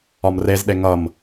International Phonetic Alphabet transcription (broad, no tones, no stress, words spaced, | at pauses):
ɒmrezɗe ŋʌm